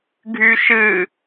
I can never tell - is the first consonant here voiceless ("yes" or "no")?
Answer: no